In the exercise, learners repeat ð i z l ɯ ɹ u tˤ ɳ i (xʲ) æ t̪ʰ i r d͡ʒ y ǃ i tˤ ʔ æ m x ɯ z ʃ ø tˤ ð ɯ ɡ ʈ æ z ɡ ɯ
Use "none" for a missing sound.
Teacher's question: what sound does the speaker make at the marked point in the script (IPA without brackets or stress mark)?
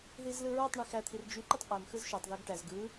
x